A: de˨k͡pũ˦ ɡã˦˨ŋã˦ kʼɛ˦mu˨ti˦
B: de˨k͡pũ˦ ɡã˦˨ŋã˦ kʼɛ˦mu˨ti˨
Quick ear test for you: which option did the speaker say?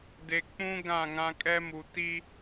A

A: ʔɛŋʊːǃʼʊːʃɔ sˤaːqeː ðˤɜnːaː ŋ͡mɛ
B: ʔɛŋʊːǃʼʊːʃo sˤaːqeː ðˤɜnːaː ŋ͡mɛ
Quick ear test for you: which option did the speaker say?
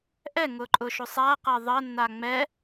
B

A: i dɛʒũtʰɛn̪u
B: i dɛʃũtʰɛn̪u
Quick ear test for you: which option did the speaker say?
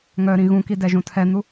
A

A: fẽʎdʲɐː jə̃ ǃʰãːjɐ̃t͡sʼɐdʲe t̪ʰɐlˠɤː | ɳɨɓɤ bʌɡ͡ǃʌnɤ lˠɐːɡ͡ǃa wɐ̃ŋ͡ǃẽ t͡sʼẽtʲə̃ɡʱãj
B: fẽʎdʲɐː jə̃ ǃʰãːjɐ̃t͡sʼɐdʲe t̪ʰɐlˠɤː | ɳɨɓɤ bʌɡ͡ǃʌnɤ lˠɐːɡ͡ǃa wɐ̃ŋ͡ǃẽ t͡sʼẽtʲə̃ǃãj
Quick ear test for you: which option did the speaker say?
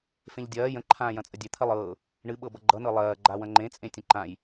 B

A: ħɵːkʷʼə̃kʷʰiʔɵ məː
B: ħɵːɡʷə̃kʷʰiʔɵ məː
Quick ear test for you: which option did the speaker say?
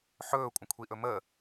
A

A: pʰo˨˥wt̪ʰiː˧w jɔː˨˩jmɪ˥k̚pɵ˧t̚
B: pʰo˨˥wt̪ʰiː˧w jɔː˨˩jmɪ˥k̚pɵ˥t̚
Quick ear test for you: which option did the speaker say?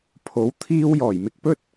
B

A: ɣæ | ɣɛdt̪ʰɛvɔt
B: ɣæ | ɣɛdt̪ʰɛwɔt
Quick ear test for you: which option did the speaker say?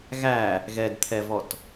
A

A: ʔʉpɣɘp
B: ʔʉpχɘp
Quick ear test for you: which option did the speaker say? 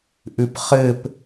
B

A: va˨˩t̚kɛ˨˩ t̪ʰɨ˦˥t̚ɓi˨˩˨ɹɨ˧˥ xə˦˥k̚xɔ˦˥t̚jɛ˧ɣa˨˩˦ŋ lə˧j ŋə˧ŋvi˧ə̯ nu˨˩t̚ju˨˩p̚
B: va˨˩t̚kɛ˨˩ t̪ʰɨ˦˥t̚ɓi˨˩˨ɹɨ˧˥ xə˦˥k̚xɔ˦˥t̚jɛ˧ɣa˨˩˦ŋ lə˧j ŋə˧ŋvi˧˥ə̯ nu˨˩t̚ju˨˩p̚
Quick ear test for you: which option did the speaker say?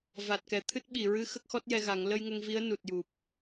B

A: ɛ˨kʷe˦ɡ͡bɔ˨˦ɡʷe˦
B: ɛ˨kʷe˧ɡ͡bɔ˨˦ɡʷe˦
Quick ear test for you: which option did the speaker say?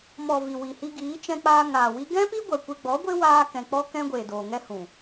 B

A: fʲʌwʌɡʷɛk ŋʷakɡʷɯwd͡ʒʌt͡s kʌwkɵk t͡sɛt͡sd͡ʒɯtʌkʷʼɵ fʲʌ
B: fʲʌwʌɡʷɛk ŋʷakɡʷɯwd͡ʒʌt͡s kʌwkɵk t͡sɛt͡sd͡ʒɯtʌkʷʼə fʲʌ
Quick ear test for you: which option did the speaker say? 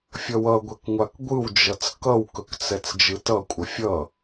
B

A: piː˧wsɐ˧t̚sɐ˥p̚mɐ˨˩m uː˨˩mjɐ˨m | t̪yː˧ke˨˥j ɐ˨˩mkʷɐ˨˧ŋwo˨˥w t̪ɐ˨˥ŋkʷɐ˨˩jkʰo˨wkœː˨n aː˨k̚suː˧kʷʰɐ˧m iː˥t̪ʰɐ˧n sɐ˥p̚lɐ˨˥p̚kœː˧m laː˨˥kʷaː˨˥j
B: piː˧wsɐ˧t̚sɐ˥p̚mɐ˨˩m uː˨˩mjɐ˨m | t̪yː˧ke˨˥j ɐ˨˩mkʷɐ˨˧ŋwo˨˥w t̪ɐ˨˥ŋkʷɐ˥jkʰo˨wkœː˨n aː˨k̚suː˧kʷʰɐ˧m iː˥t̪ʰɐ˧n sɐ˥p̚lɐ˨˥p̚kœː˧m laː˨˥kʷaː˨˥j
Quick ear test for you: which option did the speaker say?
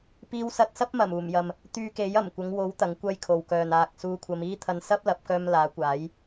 B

